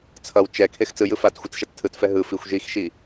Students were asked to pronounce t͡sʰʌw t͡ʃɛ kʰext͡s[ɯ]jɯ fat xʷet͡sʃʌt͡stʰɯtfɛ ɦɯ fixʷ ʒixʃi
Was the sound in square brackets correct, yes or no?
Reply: yes